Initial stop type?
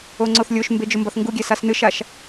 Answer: click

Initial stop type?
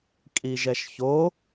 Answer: ejective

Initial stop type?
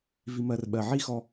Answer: implosive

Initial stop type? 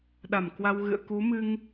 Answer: implosive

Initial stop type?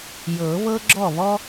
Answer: click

